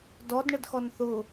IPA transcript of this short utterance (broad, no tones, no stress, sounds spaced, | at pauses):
d ɔ d ɳ ə d x ɔ n θ ʊ